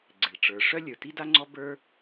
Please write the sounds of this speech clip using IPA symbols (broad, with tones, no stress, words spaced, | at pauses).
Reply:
ɡ͡ǀɪ˩ɭʈ͡ʂə˞˩ ʂœ˥lʲə˞˩ti˥da˥ ŋ͡ǀɔ˥bə˞˥